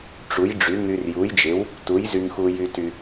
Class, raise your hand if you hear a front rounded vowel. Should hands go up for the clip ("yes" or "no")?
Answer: yes